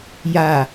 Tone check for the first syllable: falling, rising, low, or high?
low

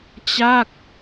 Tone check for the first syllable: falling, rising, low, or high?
falling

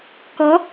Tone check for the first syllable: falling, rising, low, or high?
rising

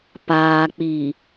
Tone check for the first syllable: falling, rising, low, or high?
low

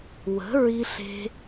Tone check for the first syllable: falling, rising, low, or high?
rising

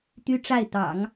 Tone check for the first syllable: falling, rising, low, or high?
high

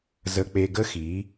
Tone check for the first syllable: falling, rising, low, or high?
low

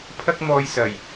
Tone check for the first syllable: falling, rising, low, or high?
high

